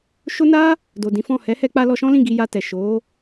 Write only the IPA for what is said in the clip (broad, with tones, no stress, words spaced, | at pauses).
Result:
ʃo˦ na˦ | do˨dĩ˨˦fɔ̃˦˨ hɛ˨˦hɛ˧k͡pa˧ lɔ˧ʃɔ̃˦lĩ˦˨ ɡi˧ja˧tɛ˨ ʃo˨˦